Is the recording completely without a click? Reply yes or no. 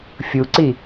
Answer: no